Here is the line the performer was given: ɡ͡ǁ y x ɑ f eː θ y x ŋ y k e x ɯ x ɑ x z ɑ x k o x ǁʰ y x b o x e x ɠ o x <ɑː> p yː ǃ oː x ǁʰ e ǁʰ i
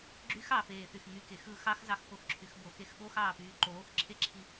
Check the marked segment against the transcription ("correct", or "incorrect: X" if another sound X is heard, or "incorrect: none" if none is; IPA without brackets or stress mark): correct